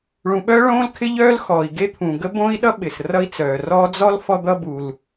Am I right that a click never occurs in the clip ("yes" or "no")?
yes